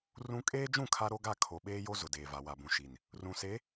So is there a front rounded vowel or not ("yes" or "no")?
no